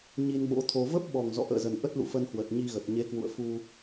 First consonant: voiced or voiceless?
voiced